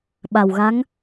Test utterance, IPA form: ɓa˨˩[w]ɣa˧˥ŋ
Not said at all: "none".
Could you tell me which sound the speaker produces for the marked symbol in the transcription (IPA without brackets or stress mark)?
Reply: w